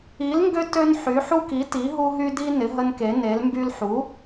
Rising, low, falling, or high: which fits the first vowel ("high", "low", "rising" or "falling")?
rising